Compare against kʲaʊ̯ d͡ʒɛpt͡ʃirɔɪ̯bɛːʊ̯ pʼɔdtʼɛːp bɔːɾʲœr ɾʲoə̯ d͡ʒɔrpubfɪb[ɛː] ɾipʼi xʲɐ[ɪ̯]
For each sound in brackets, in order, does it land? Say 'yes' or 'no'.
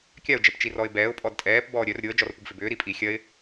no, yes

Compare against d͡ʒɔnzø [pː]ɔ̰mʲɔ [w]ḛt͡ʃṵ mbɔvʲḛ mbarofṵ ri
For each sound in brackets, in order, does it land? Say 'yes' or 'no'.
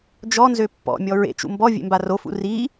yes, no

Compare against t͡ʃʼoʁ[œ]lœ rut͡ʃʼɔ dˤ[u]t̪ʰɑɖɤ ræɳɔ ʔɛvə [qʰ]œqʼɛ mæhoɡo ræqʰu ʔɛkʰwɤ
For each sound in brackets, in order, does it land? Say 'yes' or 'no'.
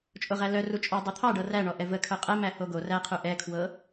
no, yes, no

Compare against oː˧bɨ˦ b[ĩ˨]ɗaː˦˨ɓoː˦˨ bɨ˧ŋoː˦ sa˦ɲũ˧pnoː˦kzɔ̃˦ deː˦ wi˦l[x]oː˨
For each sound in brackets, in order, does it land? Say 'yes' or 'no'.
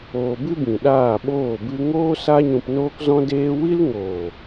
yes, no

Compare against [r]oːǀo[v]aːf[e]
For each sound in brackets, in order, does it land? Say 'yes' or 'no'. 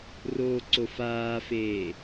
yes, no, no

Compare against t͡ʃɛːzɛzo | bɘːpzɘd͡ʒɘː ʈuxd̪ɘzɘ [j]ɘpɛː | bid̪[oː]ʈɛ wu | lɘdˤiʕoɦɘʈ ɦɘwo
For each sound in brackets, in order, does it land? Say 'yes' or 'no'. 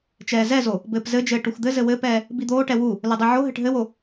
no, yes

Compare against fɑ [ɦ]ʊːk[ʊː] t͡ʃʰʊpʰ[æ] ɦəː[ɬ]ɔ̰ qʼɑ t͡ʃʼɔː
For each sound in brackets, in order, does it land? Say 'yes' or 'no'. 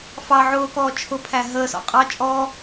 no, no, yes, no

